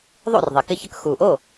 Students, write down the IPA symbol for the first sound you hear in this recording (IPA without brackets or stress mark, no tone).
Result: ðˤ